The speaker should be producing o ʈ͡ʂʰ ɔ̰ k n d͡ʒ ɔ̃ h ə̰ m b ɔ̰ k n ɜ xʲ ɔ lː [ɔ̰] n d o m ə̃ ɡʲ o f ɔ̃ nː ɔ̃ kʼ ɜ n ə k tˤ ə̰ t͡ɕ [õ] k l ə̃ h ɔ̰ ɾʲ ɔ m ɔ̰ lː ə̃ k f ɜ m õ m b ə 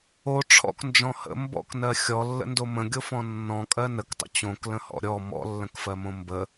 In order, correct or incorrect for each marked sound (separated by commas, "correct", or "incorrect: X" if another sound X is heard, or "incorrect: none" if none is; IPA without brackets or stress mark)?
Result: incorrect: ə̰, correct